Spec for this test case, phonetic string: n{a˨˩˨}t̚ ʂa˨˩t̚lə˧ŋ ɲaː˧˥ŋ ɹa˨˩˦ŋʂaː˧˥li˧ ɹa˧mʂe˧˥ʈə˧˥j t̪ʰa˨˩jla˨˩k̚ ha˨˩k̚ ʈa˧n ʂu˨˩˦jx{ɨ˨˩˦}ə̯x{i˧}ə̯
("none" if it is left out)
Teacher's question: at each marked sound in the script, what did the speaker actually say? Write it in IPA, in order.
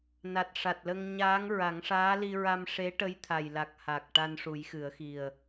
a˨˩, ɨ˨˩˦, i˨˩

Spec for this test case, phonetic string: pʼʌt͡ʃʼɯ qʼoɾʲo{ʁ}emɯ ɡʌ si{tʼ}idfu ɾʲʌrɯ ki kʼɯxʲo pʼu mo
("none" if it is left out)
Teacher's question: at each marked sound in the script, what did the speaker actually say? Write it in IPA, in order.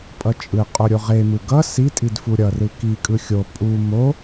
ʁ, tʼ

